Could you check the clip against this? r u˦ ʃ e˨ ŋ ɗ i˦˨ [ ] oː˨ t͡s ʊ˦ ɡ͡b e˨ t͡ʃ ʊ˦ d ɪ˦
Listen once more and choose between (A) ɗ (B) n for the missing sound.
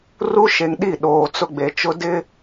A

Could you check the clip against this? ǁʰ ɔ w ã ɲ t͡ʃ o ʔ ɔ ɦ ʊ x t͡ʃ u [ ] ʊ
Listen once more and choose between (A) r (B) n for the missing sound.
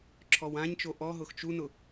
B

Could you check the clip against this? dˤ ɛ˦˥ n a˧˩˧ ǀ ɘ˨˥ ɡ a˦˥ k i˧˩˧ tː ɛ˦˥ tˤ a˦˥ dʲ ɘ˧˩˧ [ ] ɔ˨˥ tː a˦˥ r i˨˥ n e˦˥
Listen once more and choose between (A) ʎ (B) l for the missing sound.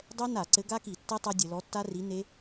B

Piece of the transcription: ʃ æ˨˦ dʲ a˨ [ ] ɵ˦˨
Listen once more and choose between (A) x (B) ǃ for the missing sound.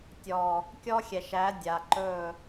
B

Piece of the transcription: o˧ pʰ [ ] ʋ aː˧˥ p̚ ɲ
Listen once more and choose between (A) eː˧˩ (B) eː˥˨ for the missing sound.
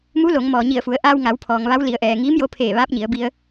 A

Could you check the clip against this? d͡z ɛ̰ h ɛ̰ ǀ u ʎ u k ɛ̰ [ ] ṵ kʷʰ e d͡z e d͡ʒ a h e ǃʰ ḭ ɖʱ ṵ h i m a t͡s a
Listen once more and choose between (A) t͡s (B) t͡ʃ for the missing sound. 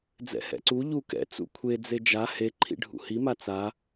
A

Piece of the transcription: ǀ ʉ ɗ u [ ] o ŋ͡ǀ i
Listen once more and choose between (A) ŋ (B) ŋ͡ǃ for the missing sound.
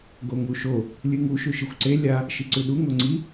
A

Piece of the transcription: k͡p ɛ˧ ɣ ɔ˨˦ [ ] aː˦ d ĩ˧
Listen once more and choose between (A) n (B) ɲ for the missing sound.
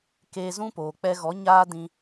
B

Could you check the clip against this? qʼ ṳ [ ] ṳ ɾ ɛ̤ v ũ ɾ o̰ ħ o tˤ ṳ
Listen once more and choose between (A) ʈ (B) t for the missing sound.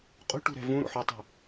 A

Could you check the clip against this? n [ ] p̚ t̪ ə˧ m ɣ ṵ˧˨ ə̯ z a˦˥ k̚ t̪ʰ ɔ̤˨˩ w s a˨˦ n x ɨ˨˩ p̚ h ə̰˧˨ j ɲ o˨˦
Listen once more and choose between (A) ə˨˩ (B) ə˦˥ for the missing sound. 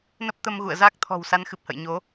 B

